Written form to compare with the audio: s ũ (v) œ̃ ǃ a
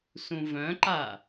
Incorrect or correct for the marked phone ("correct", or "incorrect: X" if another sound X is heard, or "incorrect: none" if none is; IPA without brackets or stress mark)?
correct